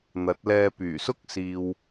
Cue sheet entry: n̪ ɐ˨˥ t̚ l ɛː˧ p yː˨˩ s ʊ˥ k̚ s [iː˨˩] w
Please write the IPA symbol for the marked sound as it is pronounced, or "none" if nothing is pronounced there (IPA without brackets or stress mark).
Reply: iː˨